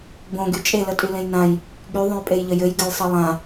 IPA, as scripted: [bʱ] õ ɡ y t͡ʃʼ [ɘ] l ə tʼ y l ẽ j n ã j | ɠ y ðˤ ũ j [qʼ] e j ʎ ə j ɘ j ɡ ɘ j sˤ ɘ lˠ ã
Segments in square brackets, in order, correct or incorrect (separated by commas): incorrect, incorrect, incorrect